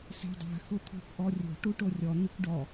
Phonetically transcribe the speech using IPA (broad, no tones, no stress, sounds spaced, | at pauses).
s ɛ̤ dˤ a̤ x ʊ t̪ʰ o̤ kʷ ʔ ɔ rʲ o̤ ʈ u ʈ o rʲ ɔ n̪ i kʷ ɖ ɔ